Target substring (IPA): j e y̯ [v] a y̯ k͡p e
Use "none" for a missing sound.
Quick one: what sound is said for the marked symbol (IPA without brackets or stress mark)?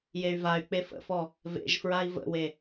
v